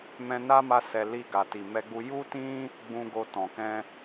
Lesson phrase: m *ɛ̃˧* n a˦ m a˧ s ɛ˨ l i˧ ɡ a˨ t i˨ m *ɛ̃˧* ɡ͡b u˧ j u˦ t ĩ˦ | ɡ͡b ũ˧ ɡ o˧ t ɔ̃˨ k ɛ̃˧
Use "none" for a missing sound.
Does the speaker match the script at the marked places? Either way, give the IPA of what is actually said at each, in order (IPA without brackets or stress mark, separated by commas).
ɛ̃˧, ɛ˧